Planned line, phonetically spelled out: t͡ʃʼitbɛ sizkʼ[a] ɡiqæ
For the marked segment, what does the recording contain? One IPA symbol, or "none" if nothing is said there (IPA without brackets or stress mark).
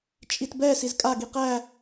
a